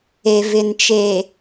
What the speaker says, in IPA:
e˨vɪ˨nt͡ʃeː˨

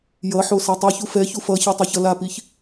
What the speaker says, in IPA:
jʌħo satˤiçu fɛçu fʌçɛ tˤʌçʌlapiç

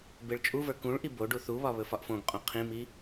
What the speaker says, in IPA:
beɭt͡ʃʼuvə˞ kũɭʔi bo ɖuθuβɒ βɵfɒʔfõɡqʼõ qʰĩmi

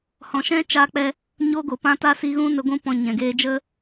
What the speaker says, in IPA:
hɔ̃˨ʃɛ̃˦ t͡ʃaː˧k͡pɛ˧ | ɲo˧ɡo˨ pã˧ta˧ si˧ɣũ˦nə˧ɡʷũ˦ pɔ̃˧ɲɛ̃˨ ɡeː˧d͡ʒə˦

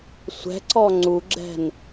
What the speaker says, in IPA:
sʷɛ̤ǀɔ ŋ͡ǀuɡ͡ǁɛ̤n

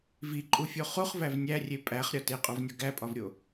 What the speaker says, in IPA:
viǃʼufʲo χuχvæv nʲærʲe pʼæχɾʲɒ teqʼovnʲɒ ɡæpʼɒvɾʲo

